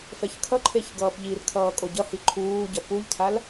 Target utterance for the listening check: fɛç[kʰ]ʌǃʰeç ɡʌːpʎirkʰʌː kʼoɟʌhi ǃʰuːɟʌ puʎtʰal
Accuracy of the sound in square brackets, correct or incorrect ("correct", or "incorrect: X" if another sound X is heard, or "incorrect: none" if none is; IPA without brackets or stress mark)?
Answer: correct